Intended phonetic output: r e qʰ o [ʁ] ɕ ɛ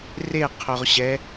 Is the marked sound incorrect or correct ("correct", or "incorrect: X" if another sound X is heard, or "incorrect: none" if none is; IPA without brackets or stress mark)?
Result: correct